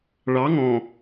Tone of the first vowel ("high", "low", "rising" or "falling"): rising